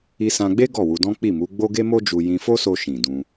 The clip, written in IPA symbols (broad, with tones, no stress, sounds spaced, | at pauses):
i˧ s ã˧ ɡ͡b e˦ ɡ ɔ˦˨ w u˧ d ɔ̃˦ k͡p i˦˨ m u˨˦ ɡ͡b o˦ ɡ e˦ m o˦ d͡ʒ u˧ j ĩ˧ f o˦ s o˧ ʃ ĩ˨ d ũ˧